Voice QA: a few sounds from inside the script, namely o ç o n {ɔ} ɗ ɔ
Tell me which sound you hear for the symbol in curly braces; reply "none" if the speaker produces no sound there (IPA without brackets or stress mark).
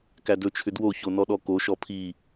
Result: ɔ